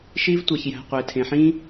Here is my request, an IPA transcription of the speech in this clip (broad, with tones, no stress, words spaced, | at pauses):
ʃi˦vtʷæ˨ç jæ̤˨qʷe˨tʰẽ˨ħĩ˦